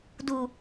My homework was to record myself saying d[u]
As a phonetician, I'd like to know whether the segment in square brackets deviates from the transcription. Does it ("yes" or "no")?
no